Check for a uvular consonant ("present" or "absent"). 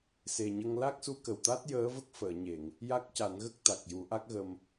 absent